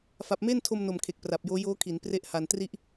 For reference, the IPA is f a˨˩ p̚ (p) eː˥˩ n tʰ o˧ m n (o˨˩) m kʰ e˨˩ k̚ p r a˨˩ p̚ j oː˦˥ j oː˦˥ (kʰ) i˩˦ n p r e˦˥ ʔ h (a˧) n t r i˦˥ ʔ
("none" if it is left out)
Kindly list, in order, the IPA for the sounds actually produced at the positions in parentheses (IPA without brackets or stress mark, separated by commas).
m, o˨˩, kʰ, a˧